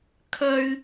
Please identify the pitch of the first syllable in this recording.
high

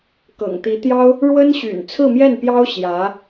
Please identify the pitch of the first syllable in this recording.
low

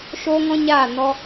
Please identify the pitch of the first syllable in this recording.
high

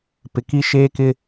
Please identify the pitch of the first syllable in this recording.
low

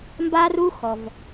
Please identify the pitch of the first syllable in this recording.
high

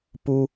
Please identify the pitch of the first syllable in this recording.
high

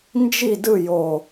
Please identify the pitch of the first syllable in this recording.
falling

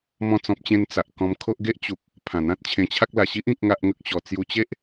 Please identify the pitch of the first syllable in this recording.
falling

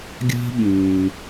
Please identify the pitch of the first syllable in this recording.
high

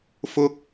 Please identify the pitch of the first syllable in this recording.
high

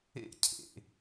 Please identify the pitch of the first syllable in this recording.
falling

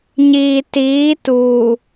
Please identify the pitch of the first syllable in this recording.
low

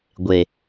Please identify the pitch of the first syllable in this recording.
low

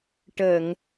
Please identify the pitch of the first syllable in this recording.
low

